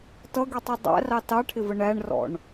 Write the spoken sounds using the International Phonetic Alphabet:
t ʌ ɡ i tˤ u dˤ æ̰ r ɑ t ɑ ʈʰ ɪ v ə ɳ æ ɳ r ɔ̰ ɳ

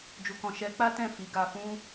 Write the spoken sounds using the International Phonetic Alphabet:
d͡ʒ u˨ k ɔ̃˨ ʃ ɛ˨˦ k͡p a˦ t ɛ̃˦˨ f i˨˦ ɡ a˧ f ũ˦

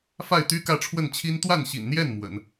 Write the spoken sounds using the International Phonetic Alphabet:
f a˥˩ ɪ̯ t̪ y˥ k ä˥˧ ʈ͡ʂʰ w ə˥˩ n t͡ɕʰ i˥ n t̪ w a˥˩ n ɕ ḭ˨˩ n n̪ j ɛ˥˩ n m w ə̰˨˩˦ n

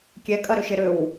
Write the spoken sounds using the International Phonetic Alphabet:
kʲ ɛ kʼ ɐ ɾ ø ʃ ɪ ɾ ʏ w

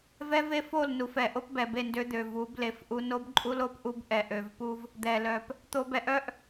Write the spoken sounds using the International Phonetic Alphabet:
v ɛ˦ v e˦ f o˦˨ l n u˨ f ɛ˨ ʔ o˦ p b ɛ˨ b e˦˨ n d ø˦ d̪ ø˨ v u˨˦ b l e˨ f ʔ u˦ n o˦ b ǃʼ u˦ l o˦ p ʔ u˦ b ʔ ɛ˨ ʔ ø˨ v p u˦ v | d̪ ɛ˨ l œ˨ p | t̪ o˦ b ɛ˦ ʔ œ˦ ʔ

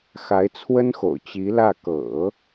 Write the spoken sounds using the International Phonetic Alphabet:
x a˧˥ ɪ̯ t͡sʰ w ə˥ n x o̰˨˩ ʊ̯ t͡ɕ i˧˥ l ä˥˩ k ɤ̰˨˩˦

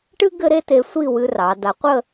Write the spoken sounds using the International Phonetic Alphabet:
ʈ ɨ˥ ɡ ɘ˥ ɾ e˥ t e˧ sʷ i˥˧ w ɨ˧ r ɑ˩˧ d a˧ qʷ ə˥˧

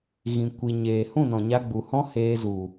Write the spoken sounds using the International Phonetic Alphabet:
ɣ ĩ˨ kʷ i˨ ɲ eː˨ h ũ˦˨ n ɔ̃˨ ɲ a˧ ɡ͡b u˨ h ɔ̃˦ h eː˧ z u˨

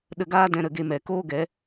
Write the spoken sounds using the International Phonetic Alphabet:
ɗ ə˧ ɡ aː˦ d ɛ̃˧ ɾ ə˧ ɡ e˧ m ɛ˨ k oː˦ ɡ ɛ˨˦

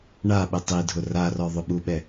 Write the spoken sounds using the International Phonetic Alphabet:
ɳ a ɓ ɪ tˤ i dʱ ʊ r a r ɔ ðˤ ʊ ɓ u ɓ ɛ

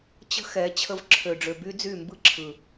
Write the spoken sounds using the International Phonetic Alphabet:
t͡ɕ ə̤˦ x ɛ˨˦ t͡ɕʰ ə˧ v ǁʰ ø˨ ɖ͡ʐ ø˨ b y˦ d͡z y˦˨ m b ɯ˦ ǁʰ ɯ˨

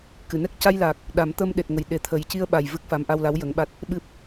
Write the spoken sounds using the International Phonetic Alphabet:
k ɨ˨˩˨ n ɛ˦˥ k̚ c a˧ j l aː˨˩ k̚ | ɗ a˨˩˦ m t̪ ə˧ m ɗ e˨˩ t̚ ŋ ə˨˩ j ɗ e˨˩ t̪ʰ ə˨˩ j c i˧ ə̯ ɓ a˨˩ j v ɨ˦˥ k̚ f a˧˥ m ʔ a˧ w l a˧˥ w j ə˧˥ ŋ ɓ a˦˥ t̚ | ɓ ɨ˦˥ p̚

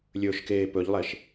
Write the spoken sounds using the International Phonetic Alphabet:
lʲ ɵː ʃ k eː p ɵ ʎ lˠ e ʃ

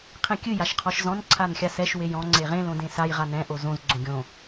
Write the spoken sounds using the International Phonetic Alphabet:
qʰ ẽ kʲ ɨ j a ʃ qʰ ɔ ʃ z ɔ̃ n ǀʰ a n xʲ a s ɛ ʃ w e j ɔ̃ ŋ͡ǀ e ʁ ẽ l õ d ẽ s a j ʁ a n ɛ̃ ʔ o z õ z ɡ͡ǀ õ ɡʲ õ

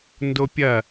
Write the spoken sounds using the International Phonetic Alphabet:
n d o pʲ ɐ

